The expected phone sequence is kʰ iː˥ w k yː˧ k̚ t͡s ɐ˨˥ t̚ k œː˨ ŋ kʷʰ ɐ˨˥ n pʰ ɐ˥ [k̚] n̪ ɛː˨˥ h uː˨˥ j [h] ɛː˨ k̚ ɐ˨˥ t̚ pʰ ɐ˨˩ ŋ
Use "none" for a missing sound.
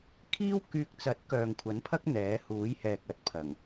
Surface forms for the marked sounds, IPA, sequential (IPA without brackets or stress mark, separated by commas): k̚, h